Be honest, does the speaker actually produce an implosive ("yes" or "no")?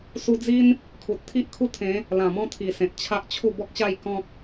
no